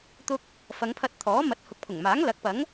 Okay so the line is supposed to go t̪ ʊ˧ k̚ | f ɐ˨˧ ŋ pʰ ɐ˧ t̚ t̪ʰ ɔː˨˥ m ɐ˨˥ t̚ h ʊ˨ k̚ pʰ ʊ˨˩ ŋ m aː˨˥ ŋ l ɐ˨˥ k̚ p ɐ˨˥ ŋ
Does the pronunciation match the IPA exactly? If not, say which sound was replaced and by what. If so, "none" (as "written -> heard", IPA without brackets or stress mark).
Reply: none